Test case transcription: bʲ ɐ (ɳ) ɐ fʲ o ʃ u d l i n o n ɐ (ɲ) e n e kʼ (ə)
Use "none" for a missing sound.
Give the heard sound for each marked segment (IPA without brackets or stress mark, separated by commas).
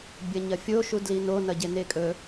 ɲ, ɟ, ɵ